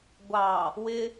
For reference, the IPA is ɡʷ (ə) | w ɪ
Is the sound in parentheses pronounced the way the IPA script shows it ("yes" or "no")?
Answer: no